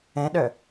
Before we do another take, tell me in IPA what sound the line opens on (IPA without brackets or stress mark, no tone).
ɛ̃